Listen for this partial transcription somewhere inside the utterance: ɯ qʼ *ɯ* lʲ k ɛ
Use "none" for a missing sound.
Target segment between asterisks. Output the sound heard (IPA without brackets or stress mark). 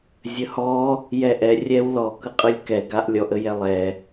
ɯ